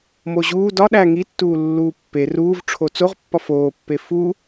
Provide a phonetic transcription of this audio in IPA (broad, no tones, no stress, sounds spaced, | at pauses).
m o ʑ uː d ɒ ɗ æ ŋ i tː uː lː uː pː e r uː v ʈ͡ʂʰ o t͡s o ʁ pː ɒ f oː pː e f u